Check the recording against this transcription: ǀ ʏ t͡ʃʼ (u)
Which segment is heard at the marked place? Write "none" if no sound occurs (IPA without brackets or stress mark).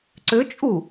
u